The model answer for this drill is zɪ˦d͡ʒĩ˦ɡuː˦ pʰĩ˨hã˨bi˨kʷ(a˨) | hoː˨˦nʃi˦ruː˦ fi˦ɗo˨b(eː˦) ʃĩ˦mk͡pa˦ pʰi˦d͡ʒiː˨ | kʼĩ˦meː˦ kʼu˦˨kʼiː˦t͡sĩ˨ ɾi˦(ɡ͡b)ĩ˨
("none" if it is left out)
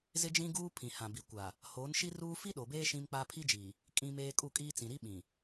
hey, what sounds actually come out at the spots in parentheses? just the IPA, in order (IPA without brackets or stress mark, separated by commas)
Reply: a˨, eː˦, ɓ